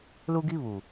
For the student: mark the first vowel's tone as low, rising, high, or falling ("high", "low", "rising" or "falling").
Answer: high